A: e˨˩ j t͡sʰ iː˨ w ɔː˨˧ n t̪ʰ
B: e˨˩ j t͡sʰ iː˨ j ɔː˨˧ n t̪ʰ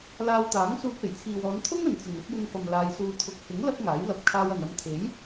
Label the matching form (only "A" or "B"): A